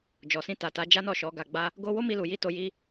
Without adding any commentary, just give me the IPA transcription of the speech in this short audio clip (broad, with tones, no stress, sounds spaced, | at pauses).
d͡ʒ ɔ˨ s ĩ˧ t a˨ t a˨˦ d͡ʒ a˦ n ɔ˦˨ ʃ ɔ˨˦ ɡ a˧ ɡ͡b a˦ | ɡ o˦ w o˦ m i˧ l u˨ j i˧ t o˧ j i˦